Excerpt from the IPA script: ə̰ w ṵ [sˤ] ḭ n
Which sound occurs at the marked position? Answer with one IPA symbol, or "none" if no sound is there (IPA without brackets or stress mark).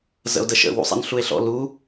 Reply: sˤ